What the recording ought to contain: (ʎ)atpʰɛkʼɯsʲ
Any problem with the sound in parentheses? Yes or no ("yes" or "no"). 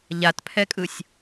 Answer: no